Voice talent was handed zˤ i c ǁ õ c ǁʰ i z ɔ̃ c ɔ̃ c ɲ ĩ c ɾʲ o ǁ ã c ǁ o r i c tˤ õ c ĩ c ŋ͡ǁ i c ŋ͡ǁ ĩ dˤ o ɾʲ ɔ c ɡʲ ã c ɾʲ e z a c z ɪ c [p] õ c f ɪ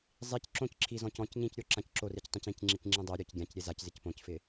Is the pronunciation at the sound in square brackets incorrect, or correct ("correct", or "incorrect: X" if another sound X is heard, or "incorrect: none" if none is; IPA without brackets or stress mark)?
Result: correct